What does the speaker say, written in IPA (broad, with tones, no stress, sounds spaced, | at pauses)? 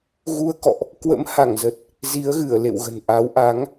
ɣ u˧ ə̯ k ɔ̰˧˨ ʔ | k w ə̰˧˥ m h a˧˩ ŋ z ə˨˩ t̚ | z i˨˦ ə̯ ɣ ɨ˧˩ ə̯ l ḛ˧˨ w ɣ ə̤˨˩ n ʔ a˨˦ w ʔ a˨˦ ŋ